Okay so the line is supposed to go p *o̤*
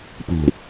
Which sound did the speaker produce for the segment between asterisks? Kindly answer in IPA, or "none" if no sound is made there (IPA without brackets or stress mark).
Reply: ṳ